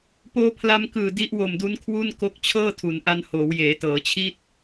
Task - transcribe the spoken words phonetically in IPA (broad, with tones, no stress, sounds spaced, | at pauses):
p oː˧ pʰ l a˧ m k ɯː˨˩ d i˦˥ ʔ w o˨˩ m d u˦˥ n kʰ w u˥˩ n k o˦˥ k̚ t͡ɕʰ ɤː˥˩ tʰ u˩˦ n ʔ a˧ n h oː˩˦ w j eː˩˦ t ɤː˩˦ t͡ɕʰ i˥˩ t̚